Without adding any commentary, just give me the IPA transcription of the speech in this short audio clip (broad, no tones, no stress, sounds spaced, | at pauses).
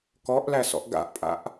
k ɔ ʔ l æ s ɔ̰ ʔ ɡ a̰ ʔ pʼ a̰ ʔ